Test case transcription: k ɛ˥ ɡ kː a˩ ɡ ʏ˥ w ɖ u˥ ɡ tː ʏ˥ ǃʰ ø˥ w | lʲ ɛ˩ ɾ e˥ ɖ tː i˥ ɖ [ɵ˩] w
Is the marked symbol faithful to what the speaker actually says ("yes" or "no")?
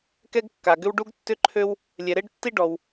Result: no